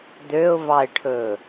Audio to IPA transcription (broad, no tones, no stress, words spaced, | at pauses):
d̪øʊ̯vɑɪ̯ʈʰɵ